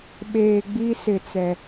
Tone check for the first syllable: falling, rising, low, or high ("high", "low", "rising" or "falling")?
low